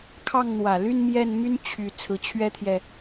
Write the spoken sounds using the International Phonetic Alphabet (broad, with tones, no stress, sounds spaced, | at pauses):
kʰ ɑ˥˩ ŋ n̪ w ä˨˩ l y˥˧ n m j ɛ˥˩ n m y˥ n t͡ɕʰ y˨˩ t͡sʰ ɹ̩˧˥ t͡ɕʰ ɥ ɛ˥ t̪ʰ j ɛ˨